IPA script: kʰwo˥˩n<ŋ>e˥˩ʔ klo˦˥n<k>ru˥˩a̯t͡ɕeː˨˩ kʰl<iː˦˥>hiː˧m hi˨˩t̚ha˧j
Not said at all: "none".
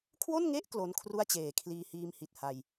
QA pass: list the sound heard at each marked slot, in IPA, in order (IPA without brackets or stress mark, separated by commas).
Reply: ŋ, kʰ, iː˧